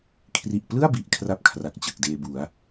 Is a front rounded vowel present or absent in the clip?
absent